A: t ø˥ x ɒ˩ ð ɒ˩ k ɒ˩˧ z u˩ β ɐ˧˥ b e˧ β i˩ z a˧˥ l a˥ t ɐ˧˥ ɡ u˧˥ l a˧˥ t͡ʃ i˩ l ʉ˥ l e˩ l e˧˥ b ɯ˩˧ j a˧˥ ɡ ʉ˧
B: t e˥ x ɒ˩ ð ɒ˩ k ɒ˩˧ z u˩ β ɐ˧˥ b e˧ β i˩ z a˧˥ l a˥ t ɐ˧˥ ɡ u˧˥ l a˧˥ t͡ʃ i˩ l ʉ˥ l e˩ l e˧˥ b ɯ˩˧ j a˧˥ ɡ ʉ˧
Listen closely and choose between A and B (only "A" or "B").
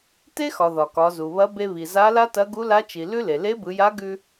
B